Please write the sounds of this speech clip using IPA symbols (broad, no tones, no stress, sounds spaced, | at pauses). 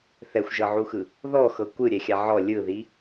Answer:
θ ɛ xʷ ʒ ɤ ʕ u x ɯ | ð ɔ x ɤ kʷ ɯ ɾʲ ɛ xʲ a ʕ ɔ lʲ ɯ ð i